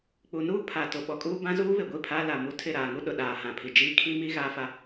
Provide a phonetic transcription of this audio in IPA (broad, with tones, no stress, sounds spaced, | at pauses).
k͡p u˨ n uː˦ pʰ a˨ t ʊ˨ ɓ ɔ˨ kʼ uː˦ b ã˦ z uː˦ β ɪ˨ ɡʷ i˦˨ pʰ a˦ l a˨ m u˦ tʰ ɪ˦˨ ɾ aː˨ ŋ u˦ ɗ ʊ˨ ɗ aː˨ h ã˨ pʰ i˨ d͡ʒ iː˦˨ kʰ i˦ m i˦ ɣ aː˦ f a˦